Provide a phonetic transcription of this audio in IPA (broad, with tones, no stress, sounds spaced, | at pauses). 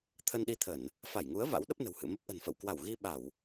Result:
t̪ʰ ə˧ n ɗ i˧ t̪ʰ ə˧˩˨ n | f a˧˩ j ŋ u˨˦ ə̯ v a̰˧˥ w ɗ ə˦˥ p̚ n ə̤˨˩ w h ɨ̰˧˨ m ə˦˥ p̚ ʔ ə̤˨˩ n f ə̰˧˨ w k w a˧˩ w ɣ i˧ ɓ a˧˩˨ w